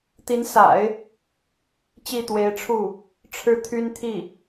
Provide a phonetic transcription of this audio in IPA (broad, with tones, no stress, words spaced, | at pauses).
t̪i˧˥nsa̰˨˩˦ɪ̯ | t͡ɕi˥˩t̪we˧˥ɪ̯ʈ͡ʂʰu˥˩ | ʈ͡ʂʰɻ̩˥˩t̪ʰy˥nt̪ʰi˥˩